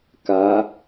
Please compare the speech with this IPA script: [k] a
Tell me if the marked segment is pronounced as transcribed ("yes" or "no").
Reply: yes